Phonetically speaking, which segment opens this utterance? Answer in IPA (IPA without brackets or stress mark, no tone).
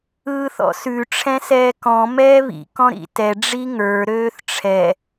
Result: ɯː